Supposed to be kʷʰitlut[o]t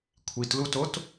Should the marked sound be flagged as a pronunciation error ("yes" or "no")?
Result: no